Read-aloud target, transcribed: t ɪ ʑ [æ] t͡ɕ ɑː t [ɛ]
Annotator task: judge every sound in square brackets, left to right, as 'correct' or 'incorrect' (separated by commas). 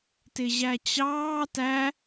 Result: correct, incorrect